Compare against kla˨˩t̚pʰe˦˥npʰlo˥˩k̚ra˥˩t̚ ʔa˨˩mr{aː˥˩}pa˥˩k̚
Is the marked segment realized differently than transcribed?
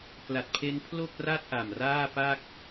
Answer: no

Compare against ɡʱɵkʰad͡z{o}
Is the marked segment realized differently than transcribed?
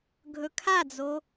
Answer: no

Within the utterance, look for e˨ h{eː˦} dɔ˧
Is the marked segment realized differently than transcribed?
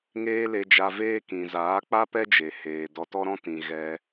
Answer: yes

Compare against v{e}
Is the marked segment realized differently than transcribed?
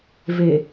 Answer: no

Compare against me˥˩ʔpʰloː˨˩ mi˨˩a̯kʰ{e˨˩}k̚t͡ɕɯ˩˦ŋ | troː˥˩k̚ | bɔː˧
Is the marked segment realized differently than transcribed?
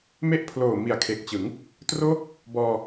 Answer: no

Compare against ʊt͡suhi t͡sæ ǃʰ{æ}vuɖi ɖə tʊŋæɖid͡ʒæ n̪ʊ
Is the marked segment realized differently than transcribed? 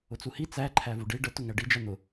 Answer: no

